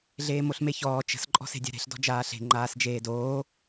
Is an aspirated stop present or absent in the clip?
absent